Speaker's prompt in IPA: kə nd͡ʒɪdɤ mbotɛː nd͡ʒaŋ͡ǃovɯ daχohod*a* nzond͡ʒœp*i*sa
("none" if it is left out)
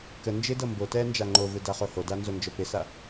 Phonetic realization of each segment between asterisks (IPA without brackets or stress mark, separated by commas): a, ɪ